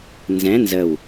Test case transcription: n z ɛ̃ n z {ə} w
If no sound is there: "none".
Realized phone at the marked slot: ə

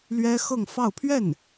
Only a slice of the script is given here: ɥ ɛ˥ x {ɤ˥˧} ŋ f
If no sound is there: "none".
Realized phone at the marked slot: ɤ˥˧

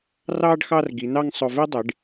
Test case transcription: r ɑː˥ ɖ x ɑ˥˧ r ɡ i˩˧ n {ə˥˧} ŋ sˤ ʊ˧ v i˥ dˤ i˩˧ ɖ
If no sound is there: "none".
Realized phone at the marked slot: ɑ˥˧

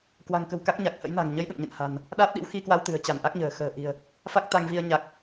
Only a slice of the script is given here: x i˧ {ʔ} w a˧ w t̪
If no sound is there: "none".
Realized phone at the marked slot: k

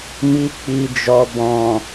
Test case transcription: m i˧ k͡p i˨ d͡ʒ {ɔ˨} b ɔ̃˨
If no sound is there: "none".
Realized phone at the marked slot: ɔ˨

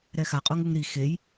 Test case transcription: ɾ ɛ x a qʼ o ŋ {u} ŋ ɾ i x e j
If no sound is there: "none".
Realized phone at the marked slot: u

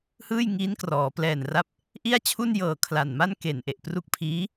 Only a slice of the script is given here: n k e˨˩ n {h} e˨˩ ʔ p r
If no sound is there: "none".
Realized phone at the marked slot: ʔ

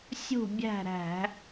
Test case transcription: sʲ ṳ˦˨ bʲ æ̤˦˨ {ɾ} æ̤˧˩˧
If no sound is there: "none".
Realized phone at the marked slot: ɾ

